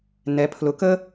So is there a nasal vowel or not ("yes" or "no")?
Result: no